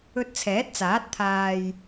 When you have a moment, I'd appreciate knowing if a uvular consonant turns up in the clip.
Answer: no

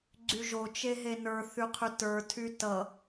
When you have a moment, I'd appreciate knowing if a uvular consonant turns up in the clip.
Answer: yes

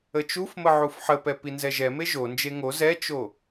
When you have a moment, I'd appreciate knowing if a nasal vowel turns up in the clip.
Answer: no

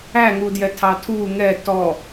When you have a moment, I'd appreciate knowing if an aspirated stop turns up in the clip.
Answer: yes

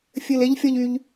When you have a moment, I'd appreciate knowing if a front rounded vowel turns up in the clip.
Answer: yes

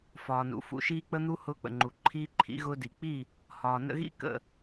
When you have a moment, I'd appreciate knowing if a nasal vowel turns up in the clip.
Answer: no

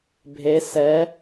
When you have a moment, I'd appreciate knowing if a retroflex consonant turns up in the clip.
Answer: no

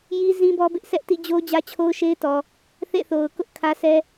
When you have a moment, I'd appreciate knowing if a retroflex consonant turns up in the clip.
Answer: no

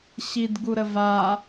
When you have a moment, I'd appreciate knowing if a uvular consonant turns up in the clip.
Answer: no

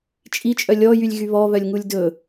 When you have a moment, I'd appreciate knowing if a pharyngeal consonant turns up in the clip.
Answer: no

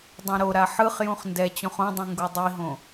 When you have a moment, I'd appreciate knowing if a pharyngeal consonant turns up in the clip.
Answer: yes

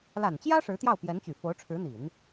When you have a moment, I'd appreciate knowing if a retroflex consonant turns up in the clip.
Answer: yes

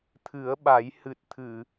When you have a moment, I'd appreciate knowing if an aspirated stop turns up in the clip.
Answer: yes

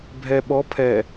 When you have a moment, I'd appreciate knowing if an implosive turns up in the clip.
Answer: yes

